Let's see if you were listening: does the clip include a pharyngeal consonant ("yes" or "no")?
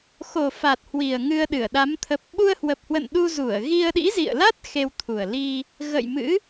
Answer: no